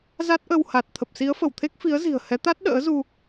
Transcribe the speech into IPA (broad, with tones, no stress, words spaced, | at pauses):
za˦˥t̚ʔə˧w ha˨˩t̚ t̪ʰə˨˩p̚si˨˦ə̯fə˧˩wt̪ʰe˦˥k̚ fi˨˦ə̯zi̤˨˩ə̯hɛ˨˦t̪a˦˥t̚ ɗə̰ː˧˥zu˧